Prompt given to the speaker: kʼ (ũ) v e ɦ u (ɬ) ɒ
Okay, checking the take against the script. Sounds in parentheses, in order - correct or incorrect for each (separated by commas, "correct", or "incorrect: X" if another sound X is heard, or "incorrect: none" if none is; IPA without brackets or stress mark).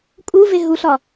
incorrect: u, correct